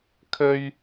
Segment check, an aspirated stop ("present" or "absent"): present